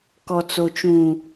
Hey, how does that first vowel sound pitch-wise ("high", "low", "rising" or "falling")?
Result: low